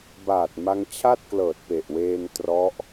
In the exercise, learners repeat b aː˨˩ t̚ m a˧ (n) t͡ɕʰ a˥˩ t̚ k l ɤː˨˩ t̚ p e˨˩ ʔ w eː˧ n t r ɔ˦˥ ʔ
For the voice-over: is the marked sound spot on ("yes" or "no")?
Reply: no